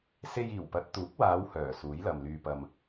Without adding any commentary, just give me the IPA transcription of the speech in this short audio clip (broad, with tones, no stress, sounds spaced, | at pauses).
s e˧ j iː˨˩ w p ɐ˨˥ t̚ t̪ uː˨˥ k̚ w aː˨˧ w h œː˨˩ s uː˨˥ j l ɐ˨ m l yː˧ p ɐ˧ m